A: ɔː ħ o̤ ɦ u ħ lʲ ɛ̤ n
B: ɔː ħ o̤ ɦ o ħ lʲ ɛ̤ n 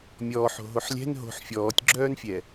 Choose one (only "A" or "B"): B